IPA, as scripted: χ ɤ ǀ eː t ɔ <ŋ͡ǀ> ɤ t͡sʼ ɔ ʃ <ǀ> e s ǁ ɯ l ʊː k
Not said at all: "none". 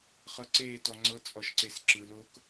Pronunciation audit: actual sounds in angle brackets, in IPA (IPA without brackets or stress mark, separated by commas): ŋ͡ǀ, ǀ